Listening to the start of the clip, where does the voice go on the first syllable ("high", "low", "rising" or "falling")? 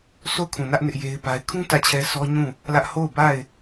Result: falling